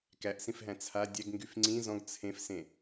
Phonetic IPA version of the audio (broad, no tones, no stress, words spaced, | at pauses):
kæʔsĩfɦæ̃ t͡sʰa dʲæɡŋɡyf ŋ͡ǀĩ zɔ̃ɡ t͡sʰẽfsẽ